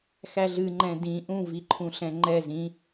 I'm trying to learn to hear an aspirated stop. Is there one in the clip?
yes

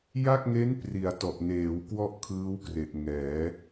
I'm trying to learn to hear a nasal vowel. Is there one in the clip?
no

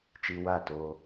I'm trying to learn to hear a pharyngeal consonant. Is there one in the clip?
no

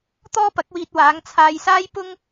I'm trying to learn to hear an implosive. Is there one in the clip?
no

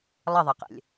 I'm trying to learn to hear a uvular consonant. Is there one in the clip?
yes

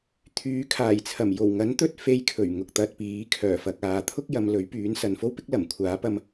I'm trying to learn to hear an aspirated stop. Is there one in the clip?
yes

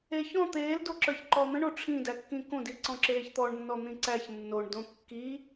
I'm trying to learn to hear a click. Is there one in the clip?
yes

